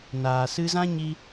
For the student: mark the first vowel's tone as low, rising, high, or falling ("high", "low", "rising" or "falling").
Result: low